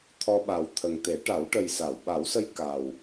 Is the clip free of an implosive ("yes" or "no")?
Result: no